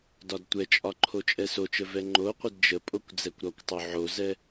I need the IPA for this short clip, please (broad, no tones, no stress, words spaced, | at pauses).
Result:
dɒdtʷɛt͡ʃʼɒ ǃʰot͡ʃʼɛsot͡ʃə vɛŋ͡ǃoqʷəd d͡ʒəpʼokʷ d͡zɛkʷɾɒkʷtˤo ʕozɛ